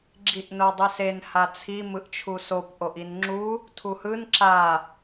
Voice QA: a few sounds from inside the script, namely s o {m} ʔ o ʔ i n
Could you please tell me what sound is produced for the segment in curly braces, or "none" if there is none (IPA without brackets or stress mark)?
p